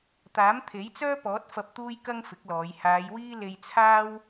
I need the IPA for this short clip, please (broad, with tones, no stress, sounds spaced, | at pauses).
t̪ aː˨˥ m t̪ʰ e˨˥ j t͡s œː˥ p ɔː˨˥ t̚ f ɐ˧ p̚ t̪ uː˥ j k ɐ˥ ŋ f ɪ˨˥ k̚ l ɔː˨˧ j h aː˨˧ j w iː˥ l e˧ j t͡sʰ aː˥ w